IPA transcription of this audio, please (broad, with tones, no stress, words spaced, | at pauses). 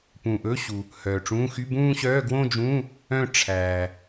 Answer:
pũ˨ʔɵ˧˥˧ɕu˨ | hœː˨ʈ͡ʂũː˧˥˧ xy˧˥˧bũː˥˧ɕœː˧˥˧ ɡwõ˥˧d͡ʒũː˧˥˧ | œ̃˥˧ ʈ͡ʂʰæː˨